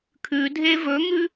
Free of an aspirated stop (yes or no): no